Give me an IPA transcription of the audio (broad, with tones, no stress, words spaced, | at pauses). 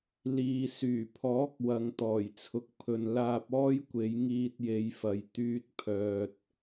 liː˨ syː˨˩pʰɔː˨˥k̚wɐ˨ŋ t̪ɔː˨˩jt͡sʰʊ˨k̚pʰɵ˨n laː˧p̚ɔː˥jkʷe˨˧j ŋiː˧t̚je˨˧jfɐ˨j t̪yː˧t̚pʰœː˨t̚